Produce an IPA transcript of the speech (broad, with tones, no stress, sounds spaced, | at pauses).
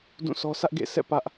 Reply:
d ũ˦˨ s ɔ˦ s ä˦ ʔ ɡ ḛ˦˨ s ɛ̰˦˨ p ä˦ ʔ